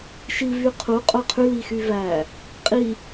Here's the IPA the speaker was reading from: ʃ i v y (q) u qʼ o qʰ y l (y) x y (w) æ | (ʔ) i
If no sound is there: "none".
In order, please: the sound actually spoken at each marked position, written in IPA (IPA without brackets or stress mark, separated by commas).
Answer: qʰ, i, v, qʼ